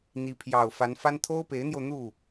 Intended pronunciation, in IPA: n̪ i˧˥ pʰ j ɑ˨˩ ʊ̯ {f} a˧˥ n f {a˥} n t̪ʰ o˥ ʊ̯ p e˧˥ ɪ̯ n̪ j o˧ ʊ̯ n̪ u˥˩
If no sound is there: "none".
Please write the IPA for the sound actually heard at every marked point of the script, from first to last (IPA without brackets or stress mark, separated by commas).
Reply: f, a˥